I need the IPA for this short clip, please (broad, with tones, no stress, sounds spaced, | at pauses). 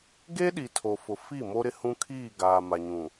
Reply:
ɡ e˦ ɗ i˨ tʰ o˨ f ʊ˨ f i˦˨ m o˦ ɾ ɪ˦ h ũ˦ kʰ iː˦˨ ɡ aː˨ m a˨ ɲ ũ˨